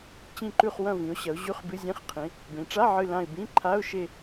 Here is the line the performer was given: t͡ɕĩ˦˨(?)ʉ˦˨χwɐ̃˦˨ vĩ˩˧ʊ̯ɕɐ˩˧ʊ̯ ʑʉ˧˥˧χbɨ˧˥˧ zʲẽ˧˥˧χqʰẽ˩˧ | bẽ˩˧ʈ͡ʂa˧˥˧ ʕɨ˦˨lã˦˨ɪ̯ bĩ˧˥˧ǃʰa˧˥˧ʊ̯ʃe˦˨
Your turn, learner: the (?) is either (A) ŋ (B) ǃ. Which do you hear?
B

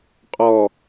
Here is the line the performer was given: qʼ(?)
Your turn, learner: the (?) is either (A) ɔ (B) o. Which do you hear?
A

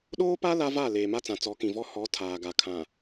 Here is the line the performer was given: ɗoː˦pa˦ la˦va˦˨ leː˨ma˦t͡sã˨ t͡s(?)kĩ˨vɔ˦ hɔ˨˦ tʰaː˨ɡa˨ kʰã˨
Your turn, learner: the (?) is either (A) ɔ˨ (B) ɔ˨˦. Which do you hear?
B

